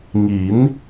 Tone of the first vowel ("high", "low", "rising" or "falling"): rising